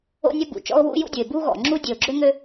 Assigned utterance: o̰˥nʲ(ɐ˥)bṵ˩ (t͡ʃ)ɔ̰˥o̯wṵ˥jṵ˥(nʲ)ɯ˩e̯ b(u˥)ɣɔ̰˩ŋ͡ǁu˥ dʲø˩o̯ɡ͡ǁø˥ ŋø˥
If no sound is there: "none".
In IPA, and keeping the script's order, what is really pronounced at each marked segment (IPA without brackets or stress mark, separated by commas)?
ɐ˥, t͡ʃ, dʲ, u˥